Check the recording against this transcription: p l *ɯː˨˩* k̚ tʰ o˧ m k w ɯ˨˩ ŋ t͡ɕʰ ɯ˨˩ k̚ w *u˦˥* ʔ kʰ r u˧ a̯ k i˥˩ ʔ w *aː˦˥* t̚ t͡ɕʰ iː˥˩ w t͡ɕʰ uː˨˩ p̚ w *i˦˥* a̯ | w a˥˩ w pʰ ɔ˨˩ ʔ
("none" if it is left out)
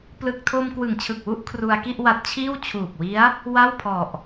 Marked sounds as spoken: ɯ˨˩, u˥˩, a˦˥, i˦˥

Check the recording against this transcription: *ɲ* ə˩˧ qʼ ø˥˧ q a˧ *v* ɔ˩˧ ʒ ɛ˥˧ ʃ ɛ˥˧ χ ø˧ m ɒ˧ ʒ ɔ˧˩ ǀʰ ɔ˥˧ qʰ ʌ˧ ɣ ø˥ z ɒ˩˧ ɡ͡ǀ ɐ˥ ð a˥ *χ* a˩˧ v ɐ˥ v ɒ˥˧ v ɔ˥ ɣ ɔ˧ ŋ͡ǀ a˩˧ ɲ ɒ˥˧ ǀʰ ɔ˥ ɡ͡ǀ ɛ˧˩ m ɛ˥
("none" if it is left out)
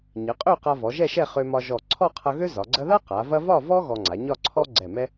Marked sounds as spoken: ɲ, v, q

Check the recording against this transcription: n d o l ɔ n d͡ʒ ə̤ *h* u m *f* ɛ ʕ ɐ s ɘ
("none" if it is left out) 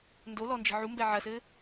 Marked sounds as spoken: ʕ, b

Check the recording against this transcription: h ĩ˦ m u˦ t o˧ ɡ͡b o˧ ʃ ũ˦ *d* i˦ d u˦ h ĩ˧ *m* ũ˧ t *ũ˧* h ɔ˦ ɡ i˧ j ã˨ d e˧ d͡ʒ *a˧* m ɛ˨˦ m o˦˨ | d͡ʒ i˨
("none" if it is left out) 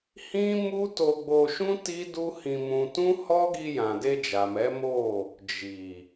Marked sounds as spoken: t, m, ũ˦, a˨

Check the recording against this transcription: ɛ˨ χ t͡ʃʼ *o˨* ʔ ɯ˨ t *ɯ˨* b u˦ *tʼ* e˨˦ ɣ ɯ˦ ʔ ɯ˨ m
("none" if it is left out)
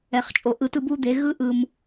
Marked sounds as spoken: o˨, ɯ˦˨, d̪

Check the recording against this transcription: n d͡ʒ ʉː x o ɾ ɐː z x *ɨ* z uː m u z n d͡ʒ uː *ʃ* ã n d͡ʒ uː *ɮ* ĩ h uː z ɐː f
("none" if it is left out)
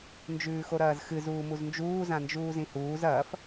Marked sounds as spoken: ɨ, z, z

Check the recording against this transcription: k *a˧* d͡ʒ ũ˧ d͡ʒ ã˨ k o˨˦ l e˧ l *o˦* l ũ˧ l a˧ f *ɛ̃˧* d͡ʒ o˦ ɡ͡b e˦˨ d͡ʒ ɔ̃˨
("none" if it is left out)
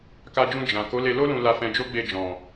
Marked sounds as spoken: a˧, o˦, ɛ̃˧

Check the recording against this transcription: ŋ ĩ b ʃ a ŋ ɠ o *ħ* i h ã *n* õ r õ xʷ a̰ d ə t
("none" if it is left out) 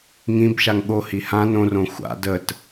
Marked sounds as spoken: h, n

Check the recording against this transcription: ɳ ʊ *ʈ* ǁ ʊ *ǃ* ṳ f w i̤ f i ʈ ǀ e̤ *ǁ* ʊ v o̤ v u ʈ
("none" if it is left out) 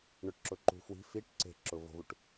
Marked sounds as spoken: ʈ, ǃ, ǁ

